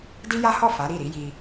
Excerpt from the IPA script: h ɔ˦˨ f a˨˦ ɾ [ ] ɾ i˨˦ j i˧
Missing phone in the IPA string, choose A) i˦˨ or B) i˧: A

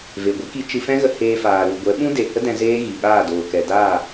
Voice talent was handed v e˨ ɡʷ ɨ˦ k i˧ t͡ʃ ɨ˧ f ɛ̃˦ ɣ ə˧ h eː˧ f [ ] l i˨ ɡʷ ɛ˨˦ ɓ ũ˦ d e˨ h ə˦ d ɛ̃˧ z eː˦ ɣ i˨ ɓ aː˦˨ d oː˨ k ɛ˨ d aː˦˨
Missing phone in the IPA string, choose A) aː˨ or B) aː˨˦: A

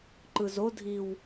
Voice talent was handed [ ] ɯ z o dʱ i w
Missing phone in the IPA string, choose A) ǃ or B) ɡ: A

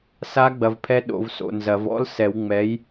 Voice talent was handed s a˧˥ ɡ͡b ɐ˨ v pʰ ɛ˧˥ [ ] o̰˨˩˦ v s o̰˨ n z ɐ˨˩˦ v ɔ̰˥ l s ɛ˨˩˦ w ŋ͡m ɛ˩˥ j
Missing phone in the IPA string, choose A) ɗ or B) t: A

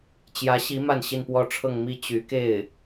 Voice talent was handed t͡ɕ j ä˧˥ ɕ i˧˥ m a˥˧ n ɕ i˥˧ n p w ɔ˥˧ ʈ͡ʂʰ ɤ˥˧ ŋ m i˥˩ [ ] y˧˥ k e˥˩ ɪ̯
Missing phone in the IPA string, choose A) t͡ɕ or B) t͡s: A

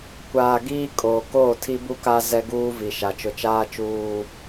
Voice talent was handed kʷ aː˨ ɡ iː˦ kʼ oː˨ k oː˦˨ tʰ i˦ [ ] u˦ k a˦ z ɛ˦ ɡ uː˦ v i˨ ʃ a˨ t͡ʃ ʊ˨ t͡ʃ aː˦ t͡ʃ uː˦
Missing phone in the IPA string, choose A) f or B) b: B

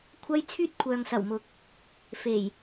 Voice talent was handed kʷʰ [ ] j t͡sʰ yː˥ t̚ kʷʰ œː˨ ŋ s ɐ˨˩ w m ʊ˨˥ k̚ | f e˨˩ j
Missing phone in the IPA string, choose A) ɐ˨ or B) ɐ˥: B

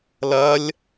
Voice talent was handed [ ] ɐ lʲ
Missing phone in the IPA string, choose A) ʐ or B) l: B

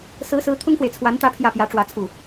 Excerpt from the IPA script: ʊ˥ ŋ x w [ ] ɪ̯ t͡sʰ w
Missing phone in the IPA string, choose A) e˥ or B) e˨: B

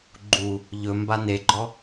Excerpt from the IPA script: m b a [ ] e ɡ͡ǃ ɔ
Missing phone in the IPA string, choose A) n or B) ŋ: A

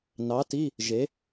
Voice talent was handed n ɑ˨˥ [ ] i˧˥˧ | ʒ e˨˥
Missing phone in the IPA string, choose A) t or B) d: A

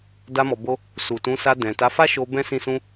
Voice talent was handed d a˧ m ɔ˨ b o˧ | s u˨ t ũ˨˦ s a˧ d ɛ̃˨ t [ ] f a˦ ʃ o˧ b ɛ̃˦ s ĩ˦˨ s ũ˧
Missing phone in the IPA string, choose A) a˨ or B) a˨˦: B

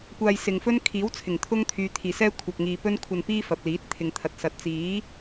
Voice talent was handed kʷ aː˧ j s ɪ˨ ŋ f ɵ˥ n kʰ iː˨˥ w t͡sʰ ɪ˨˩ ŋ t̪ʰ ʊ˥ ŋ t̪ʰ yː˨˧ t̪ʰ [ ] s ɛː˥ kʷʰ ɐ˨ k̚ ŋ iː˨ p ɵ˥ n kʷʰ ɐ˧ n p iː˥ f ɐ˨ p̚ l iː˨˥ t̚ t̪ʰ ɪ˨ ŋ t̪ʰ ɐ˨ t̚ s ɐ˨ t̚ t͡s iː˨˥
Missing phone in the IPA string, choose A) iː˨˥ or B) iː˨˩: B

